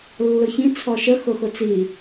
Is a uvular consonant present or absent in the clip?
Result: absent